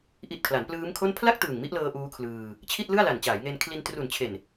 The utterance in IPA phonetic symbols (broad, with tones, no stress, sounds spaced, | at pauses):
ʔ i˨˩ t̚ kʰ l a˩˦ n p l ɯː˦˥ m kʰ o˥˩ n pʰ l a˥˩ k̚ t ɯː˨˩ ŋ m i˦˥ ʔ l ɤː˧ ʔ uː˦˥ kʰ l ɯː˧ | t͡ɕʰ i˥˩ t̚ l ɯ˥˩ a̯ l a˨˩ n t͡ɕ aː˩˦ j ŋ e˧ n kʰ l i˧ n t r u˨˩ n t͡ɕʰ e˨˩ n